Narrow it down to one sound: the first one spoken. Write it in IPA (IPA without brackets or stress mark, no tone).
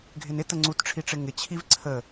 ɡʱ